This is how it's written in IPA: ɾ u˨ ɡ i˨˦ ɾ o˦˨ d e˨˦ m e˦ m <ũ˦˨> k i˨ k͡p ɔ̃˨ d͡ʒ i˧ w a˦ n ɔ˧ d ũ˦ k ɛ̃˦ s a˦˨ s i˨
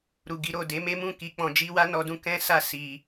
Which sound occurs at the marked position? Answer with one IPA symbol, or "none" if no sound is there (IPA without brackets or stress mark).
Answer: ũ˦˨